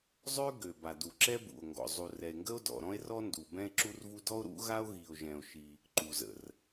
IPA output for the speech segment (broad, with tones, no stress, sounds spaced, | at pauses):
zˤ ø˥ ɡ ø˩ b a˩ d u˩ ǁ ɛ˥ b ṵ˩ o̯ ŋ ɡ ɔ̰˩ zˤ u˩ r ɛ˩ e̯ ŋ ɡ ə˥ o̯ d ɔ̰˩ ɾ ɔ̃˥ e̯ r ɔ˥ n d u˩ b ɛ̃˥ e̯ ǁ u˥ r v u˥ d ɔ˥ o̯ ɾ ṵ˥ ɣ a˥ o̯ ɣ i˩ o̯ ʒ ɛ̃˩ o̯ ʃ i˩ | ǃ u˩ z ə̰˩ r